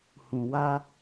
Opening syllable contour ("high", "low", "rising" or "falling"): low